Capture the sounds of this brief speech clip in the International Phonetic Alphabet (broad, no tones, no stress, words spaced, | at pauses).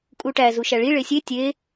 kʼuʈæ zuʃæɭi ɭesʲe tʲe